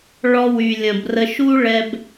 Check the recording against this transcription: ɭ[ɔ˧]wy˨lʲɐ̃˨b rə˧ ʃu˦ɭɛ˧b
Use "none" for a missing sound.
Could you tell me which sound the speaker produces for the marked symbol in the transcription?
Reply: ɔ˧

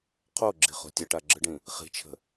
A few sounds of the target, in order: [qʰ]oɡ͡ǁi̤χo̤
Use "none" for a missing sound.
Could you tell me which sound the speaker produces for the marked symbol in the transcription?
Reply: qʰ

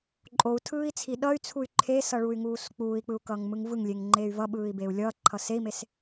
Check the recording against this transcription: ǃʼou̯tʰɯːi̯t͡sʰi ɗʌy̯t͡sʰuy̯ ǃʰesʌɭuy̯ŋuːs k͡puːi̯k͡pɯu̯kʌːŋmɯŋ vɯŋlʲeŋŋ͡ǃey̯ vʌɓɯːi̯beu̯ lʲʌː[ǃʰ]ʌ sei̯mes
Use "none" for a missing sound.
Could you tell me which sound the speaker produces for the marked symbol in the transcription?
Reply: ǃʰ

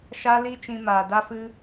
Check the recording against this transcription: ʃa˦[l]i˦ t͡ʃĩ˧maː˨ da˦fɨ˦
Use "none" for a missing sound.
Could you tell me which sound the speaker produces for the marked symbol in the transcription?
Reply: l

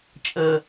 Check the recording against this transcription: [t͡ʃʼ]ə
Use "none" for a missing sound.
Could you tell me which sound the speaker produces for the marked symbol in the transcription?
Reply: t͡ʃʼ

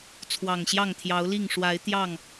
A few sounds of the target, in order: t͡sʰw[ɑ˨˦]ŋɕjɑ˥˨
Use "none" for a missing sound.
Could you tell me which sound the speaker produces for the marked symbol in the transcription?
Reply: ɑ˨˩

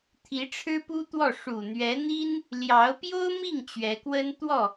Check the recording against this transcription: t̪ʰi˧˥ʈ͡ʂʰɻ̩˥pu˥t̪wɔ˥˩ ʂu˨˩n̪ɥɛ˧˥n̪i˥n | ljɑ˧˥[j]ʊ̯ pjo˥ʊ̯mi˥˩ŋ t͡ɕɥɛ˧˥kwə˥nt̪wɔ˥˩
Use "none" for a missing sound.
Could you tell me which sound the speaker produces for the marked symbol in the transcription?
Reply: none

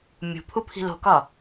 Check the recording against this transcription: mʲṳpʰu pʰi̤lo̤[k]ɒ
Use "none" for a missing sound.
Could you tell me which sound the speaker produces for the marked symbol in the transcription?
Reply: k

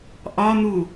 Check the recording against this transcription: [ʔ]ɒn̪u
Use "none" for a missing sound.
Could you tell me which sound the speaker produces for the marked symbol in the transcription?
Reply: ʔ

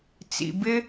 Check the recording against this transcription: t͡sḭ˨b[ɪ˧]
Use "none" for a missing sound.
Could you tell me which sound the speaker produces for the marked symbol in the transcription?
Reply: ɪ˧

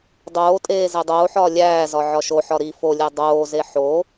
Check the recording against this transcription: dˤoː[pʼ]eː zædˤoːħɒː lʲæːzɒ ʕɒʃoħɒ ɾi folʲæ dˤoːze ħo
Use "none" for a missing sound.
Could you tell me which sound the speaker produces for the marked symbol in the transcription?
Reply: tʼ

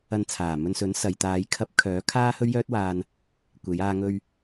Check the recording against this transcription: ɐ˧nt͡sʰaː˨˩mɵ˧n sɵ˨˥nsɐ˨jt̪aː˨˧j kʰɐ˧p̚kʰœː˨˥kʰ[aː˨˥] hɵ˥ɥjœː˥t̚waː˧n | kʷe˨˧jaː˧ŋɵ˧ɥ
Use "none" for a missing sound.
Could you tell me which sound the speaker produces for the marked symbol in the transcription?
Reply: aː˥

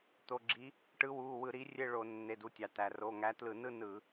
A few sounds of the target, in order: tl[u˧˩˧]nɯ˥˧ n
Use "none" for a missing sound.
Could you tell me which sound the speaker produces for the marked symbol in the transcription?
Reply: ɯ˧˩˧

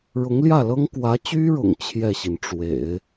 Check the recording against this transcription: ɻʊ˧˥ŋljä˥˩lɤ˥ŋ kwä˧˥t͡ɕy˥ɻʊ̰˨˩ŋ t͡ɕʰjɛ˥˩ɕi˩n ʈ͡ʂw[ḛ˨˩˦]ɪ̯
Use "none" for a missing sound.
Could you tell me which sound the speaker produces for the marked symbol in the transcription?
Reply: ḛ˨˩˦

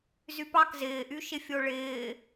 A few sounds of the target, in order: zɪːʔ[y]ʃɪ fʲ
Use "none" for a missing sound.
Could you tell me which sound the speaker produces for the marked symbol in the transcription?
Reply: y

